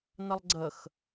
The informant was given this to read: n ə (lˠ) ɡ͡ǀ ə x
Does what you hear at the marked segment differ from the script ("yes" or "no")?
no